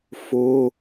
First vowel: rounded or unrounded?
rounded